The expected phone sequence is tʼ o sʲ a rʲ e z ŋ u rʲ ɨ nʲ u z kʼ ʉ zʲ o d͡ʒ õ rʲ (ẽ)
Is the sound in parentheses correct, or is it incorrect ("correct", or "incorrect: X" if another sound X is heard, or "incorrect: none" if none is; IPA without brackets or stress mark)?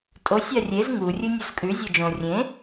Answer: correct